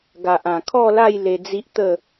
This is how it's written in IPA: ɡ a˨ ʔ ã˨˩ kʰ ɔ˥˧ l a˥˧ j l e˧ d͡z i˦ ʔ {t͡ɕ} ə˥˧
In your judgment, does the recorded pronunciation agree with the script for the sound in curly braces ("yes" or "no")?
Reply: no